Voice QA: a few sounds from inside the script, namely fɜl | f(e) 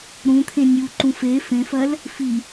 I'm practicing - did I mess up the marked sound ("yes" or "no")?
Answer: yes